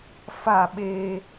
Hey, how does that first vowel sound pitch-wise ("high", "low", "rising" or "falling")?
falling